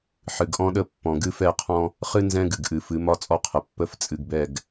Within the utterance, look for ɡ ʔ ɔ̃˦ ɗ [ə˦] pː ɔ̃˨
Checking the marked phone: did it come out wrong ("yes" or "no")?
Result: no